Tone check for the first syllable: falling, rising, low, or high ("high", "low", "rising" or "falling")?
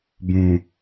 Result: low